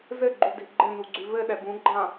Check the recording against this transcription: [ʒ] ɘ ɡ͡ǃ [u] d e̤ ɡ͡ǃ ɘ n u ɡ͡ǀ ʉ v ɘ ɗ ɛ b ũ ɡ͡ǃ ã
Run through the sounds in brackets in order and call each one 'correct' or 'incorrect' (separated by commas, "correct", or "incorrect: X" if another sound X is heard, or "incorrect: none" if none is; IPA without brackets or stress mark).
incorrect: z, correct